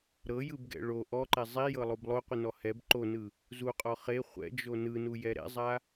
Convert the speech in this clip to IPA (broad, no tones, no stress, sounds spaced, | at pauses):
ɾ ɤ j ɯ b ɡ ɛ̰ ɭ o ʔ ɔ ǃ ɛ zˤ i j ɤ lˠ o b lˠ o qʷ ɯ n ɔ h ɛ b ǃ o n ɯ | z u qʼ ɔ χ e χʷ ɛ̰ d͡ʒ o n ɯ n u j ɛ ɾ ɛ̰ zˤ a